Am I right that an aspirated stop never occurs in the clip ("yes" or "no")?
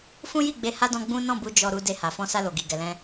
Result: yes